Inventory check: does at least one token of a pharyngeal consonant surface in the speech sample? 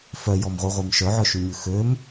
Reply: yes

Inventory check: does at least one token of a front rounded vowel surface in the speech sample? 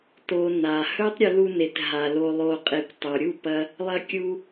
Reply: no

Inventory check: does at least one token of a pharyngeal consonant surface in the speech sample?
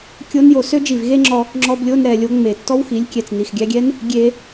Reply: no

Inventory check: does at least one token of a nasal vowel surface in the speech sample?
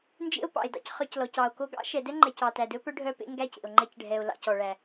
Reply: no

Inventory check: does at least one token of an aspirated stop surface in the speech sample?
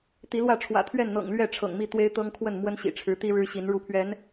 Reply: yes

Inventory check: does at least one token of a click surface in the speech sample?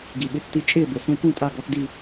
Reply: no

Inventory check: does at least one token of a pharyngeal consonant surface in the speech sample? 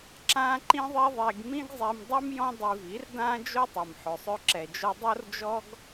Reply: yes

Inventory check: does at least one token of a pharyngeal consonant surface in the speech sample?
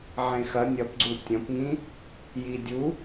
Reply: yes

